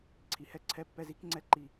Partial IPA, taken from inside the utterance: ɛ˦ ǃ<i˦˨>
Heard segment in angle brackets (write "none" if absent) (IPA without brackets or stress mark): i˨